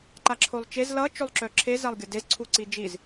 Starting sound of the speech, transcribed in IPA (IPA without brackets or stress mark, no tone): ǃ